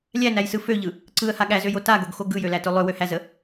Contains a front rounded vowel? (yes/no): yes